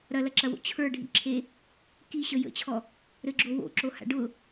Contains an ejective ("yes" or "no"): no